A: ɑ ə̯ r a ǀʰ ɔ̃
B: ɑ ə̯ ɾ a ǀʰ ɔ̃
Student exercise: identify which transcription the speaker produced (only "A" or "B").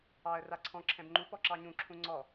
A